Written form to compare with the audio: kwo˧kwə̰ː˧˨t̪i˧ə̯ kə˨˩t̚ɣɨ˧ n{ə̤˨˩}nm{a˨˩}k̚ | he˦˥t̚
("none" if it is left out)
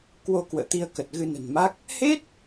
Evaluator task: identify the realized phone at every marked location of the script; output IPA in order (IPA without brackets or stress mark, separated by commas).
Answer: ə̤˨˩, a˦˥